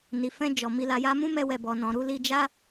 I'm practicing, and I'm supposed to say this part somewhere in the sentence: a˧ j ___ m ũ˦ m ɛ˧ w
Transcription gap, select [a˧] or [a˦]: a˦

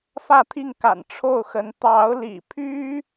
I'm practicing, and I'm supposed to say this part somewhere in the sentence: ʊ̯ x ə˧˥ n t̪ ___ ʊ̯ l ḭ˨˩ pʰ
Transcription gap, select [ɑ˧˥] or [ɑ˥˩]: ɑ˧˥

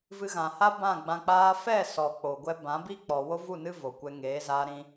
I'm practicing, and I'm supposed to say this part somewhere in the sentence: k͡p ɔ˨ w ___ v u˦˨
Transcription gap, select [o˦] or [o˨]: o˦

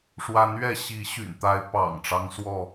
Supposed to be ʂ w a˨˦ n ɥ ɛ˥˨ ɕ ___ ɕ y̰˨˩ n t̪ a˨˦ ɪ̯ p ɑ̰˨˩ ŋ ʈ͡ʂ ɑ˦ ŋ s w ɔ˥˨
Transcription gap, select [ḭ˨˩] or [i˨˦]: i˨˦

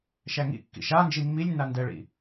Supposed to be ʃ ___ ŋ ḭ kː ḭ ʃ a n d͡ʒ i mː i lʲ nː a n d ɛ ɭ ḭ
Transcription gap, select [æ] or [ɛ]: æ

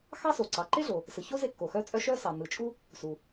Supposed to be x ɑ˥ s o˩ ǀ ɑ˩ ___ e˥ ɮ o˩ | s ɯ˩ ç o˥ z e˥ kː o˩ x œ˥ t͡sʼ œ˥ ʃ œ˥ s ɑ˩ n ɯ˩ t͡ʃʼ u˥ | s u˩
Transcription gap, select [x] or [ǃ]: ǃ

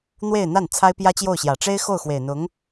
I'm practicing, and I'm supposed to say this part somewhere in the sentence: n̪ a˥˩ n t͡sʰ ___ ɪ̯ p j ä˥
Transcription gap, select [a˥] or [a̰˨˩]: a˥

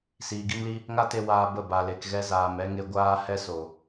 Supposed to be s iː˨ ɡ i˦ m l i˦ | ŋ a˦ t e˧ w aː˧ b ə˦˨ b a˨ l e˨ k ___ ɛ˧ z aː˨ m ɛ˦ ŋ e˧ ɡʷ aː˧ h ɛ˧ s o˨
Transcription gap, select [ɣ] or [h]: ɣ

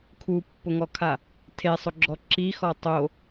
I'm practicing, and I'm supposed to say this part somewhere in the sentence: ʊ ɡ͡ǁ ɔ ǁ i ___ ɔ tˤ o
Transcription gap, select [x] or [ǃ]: x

